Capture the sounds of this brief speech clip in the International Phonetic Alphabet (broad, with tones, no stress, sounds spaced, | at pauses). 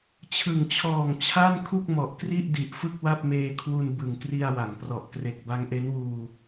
t͡ɕʰ ɯ˨˩ ŋ t͡ɕʰ ɔː˨˩ ŋ t͡ɕʰ a˥˩ n kʰ u˥˩ k̚ m ɔ˨˩ ʔ k r i˥˩ ʔ d i˨˩ ʔ f ɯ˥˩ k̚ w a˥˩ p̚ m eː˧ kʰ w u˧ n b ɯ˨˩ ŋ k r i˧ a̯ w a˩˦ ŋ p r ɔ˨˩ ʔ k r e˨˩ k̚ b a˦˥ ŋ ʔ e˦˥ n w uː˧